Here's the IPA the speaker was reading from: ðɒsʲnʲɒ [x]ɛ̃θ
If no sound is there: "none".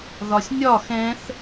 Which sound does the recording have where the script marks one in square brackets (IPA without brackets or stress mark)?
x